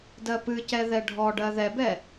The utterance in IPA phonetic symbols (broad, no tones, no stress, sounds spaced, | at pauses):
d ɜ p ɨ c ɛ ð ɛ ɖʱ ɔ ɖ ɜ ð ɛ b ɛ